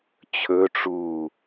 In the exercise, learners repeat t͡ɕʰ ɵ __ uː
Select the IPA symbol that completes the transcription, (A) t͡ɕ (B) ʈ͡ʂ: B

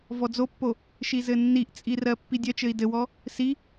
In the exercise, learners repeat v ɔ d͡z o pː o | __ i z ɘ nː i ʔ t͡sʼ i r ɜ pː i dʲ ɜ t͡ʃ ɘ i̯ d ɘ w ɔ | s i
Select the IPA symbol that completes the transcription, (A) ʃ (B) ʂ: A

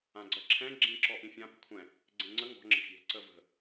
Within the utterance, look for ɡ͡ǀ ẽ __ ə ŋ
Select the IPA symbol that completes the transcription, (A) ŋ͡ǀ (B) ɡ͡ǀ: A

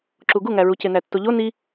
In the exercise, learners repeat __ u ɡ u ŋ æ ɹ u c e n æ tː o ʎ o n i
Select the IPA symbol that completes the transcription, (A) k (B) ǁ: B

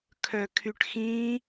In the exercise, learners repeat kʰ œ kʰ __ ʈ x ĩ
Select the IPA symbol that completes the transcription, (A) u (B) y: B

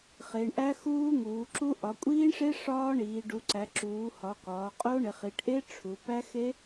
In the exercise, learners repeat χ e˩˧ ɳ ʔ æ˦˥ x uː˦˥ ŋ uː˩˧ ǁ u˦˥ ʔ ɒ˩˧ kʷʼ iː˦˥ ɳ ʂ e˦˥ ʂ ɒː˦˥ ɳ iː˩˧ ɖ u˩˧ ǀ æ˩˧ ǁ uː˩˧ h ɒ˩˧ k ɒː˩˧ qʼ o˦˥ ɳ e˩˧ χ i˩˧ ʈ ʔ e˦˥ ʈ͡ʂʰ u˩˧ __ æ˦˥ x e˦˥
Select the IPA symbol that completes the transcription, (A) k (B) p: B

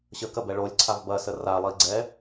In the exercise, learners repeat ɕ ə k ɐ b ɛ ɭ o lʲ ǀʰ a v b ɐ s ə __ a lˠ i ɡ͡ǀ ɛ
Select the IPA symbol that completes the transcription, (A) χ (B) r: B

